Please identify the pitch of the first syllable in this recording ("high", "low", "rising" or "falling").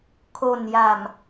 low